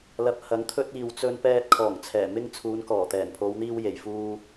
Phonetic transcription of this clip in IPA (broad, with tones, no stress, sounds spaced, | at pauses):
l ɐ˨ p̚ h ɐ˨˥ ŋ t̪ʰ ɵ˧ t̚ iː˨ w t͡s ɵ˧ n p ɛː˧ t̚ kʰ ɔː˨˩ ŋ t͡sʰ ɛː˨˩ m ɪ˧ ŋ t͡sʰ uː˨˧ n k ɔː˨˩ t̪ ɛː˨˩ n pʰ o˨˧ w n̪ iː˧ w j e˨˩ j f uː˧